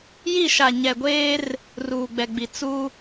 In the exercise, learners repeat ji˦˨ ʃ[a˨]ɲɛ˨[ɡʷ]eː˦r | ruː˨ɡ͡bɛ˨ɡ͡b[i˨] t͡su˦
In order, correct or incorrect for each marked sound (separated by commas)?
correct, correct, correct